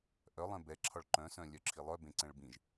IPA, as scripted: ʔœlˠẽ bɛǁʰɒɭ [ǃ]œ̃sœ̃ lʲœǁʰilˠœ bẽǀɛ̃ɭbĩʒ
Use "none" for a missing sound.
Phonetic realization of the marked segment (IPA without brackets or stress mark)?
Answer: ǃ